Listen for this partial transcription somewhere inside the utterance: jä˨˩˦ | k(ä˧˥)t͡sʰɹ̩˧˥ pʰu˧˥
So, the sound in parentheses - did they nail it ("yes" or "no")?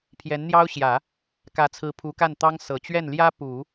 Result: yes